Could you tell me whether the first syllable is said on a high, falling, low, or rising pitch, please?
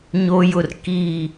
high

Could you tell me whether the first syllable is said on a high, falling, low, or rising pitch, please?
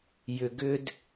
low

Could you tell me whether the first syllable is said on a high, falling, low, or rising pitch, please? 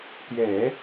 low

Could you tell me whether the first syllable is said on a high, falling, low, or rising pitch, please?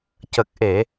low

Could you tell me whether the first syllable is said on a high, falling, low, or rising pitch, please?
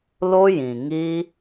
high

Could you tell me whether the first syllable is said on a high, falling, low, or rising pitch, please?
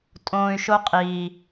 low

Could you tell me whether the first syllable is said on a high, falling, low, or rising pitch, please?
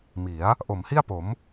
rising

